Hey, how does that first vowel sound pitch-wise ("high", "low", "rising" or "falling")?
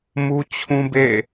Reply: high